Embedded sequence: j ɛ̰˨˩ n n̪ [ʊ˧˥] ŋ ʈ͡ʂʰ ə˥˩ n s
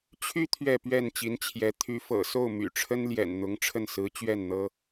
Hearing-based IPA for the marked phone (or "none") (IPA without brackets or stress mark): ʊ˧˥